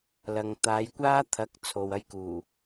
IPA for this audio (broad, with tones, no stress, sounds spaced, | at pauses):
l ɐ˨ ŋ t̪ aː˨˧ j kʷ aː˥ t̪ʰ ɐ˨˥ k̚ t͡sʰ o˨ w ɐ˥ j k uː˨˩